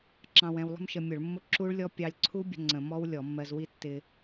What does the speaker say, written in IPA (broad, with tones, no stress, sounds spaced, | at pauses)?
ǁ ɑ̃˧ w ɛ̃˧ w lˠ ə̤˦˥ m ʃ ə˧ mʲ ʊ˧˩˧ ɭ mː ʊ˦˥ ǁ u˦˥ ɭ lʲ ɔ˦˥ pʲ ɑ˧ lʲ ǀʰ u˦˥ bʲ ə̤˧ ŋ͡ǀ ə̃˧˩˧ m ɔ˦˥ w lʲ ɔ˧˩˧ mː ɜ˧ z w i˦˥ tː ɪ˧